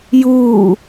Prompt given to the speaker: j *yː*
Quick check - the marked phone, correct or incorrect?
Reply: incorrect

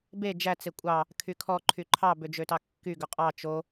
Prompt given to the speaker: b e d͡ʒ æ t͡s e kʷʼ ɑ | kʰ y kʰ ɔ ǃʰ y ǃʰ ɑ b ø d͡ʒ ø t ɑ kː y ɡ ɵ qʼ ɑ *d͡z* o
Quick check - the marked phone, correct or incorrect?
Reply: incorrect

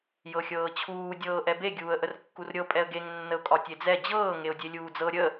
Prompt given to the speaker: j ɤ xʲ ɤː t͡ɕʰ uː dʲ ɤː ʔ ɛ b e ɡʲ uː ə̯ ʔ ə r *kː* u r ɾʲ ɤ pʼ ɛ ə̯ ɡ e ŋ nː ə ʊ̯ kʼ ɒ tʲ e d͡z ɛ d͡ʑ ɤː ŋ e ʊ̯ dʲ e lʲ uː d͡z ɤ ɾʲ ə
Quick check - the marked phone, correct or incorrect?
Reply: correct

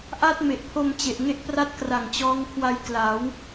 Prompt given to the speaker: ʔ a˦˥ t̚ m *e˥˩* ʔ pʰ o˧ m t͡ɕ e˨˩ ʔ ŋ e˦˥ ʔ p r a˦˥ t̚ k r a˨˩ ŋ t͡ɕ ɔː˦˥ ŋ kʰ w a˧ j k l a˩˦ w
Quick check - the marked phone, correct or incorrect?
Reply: incorrect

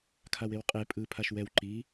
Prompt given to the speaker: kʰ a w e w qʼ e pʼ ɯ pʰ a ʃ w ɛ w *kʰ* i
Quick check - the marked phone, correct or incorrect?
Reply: incorrect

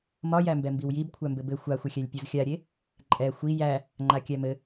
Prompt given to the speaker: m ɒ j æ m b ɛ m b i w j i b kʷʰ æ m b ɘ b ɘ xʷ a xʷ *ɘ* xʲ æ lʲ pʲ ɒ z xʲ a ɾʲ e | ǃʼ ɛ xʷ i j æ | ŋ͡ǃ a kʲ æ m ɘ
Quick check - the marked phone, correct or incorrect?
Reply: correct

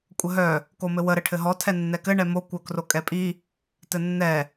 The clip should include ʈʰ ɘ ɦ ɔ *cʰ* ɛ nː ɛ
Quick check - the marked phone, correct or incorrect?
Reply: incorrect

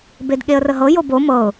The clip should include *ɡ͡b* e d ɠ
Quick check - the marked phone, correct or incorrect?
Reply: incorrect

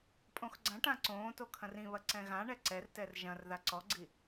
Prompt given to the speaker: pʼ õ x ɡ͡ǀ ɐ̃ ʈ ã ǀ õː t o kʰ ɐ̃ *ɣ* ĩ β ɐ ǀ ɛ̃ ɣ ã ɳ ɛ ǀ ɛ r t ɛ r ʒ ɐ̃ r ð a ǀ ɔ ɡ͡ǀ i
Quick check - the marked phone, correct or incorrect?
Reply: incorrect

